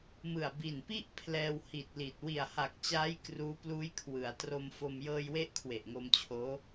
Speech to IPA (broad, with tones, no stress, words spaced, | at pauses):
mɯ˨˩a̯ bi˨˩npi˥˩ʔ pʰlɛː˧whi˨˩t̚li˨˩t̚ wi˨˩a̯ha˨˩k̚t͡ɕaː˦˥j kruː˦˥pluː˦˥j kʰwɯ˩˦a̯ tro˧mfo˧m jɤː˧jwe˦˥ʔ kʰwe˨˩ʔŋo˧mt͡ɕʰoː˦˥